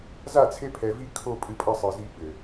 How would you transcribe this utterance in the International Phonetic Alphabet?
za˦˨t͡sʰe˦ pʰɛ˨vi˦kʰo˦˨ pʼɨ˦pʼɐ˦sˤɘ˨zi˦ ɓɘ˨

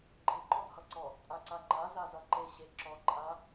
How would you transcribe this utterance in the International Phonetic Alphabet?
ɡ͡ǃe ǃɔdhʌǀɔ | tʼaǀaŋ͡ǃa zazʌǃe ɕe ǁɔ ǃʼa

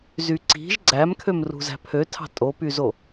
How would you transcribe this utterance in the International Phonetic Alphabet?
zyǀi̤ʒ ɡ͡ǀæmkʰøm rṳzæ̤pʰøtʰɑ̤ tʼopyzo

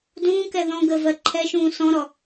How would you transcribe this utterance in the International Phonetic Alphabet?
dũːkɛ ðɔ̃ ɡəvɜ ǃʰɛʃũː sɔ̃ɾɔ

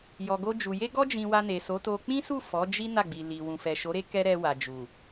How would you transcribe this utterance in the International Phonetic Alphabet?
jɔ˨ɡo˧d͡ʒu˨ je˧ɡɔ˧d͡ʒĩ˨ wa˧ne˨so˨˦to˧ k͡pĩ˦su˦˨ fɔ˨˦d͡ʒi˦ na˦˨ɡ͡bi˨li˨wũ˨ fɛ˨ʃo˨˦ɾe˦ kɛ˦ɾɛ˧wa˨ d͡ʒu˨

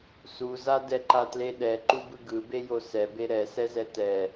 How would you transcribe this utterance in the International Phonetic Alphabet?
suza dɛǃatleɗɛ ǃubɯɡɯbe josɛbe ɾɛsɛzɛ tɛ

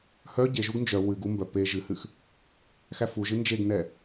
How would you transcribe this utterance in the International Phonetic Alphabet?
hœ ɟeʒuɡ nd͡ʒœ wɨɡ u mbœ pe ʒɨhɨx | xæfuʒɨ nd͡ʒeɡnɛ

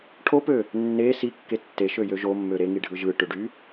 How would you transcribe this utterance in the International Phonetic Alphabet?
ʈʰopø | nːe sikːe tːeʃøjø ʒomːø ɾeŋiɖʱɯ ʒɯʈøɖy

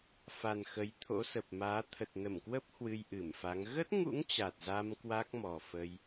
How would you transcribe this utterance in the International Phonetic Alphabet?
fa˨˩n xə˨˦jt̪ʰo̰˧˥ sə˨˩p̚maː˨˦ t̪ʰə˨˩t̚nə˧˩mkwə˦˥p̚ hwɨ˧jʔɨ˧˩mfa˨˦ŋ ɣə˦˥t̚ŋṵ˧˥ŋ t͡ɕa˨˩t̚za˧m kwa˦˥k̚mɔ˨˩fə˧j

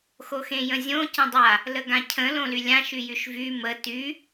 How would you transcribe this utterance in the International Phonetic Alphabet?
xoxẽjə̃zʲõ cə̃dˤa | ləɡãcʰə̃ lõlylʲã ʃyjyʃvy mə ty

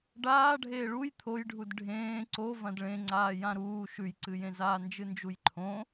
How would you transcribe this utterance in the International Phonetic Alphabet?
ɖaː ɖʱeːɭuj t̪ʰojɖʱud ɖʱẽː ǀo vɐ̃dɭẽŋ͡ǀaː jãɾuː ʃʉjǀɨjẽzaː nd͡ʒɨnd͡ʒujǃʰõ

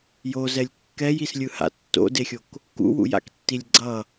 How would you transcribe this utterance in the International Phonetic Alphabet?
jozɛlʲ kːɛjislʲɯha̰ tːo̰dexʲok | kṵwṵja̰ktːilʲ ɡ͡ǀʌ

